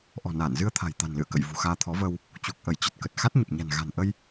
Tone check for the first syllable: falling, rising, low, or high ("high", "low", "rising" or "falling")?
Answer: low